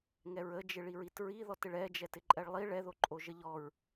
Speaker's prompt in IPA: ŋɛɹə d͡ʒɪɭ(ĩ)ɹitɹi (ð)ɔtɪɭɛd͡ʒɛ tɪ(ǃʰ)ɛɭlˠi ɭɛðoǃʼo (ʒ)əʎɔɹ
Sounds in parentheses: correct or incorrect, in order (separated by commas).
incorrect, correct, incorrect, correct